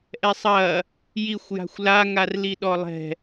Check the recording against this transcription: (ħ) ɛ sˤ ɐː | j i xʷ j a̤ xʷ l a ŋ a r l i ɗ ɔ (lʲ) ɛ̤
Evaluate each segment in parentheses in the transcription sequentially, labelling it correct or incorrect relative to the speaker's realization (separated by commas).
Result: incorrect, incorrect